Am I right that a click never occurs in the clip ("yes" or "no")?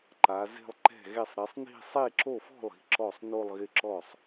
no